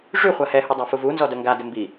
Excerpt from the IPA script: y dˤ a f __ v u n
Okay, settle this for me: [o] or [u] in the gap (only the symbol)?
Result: u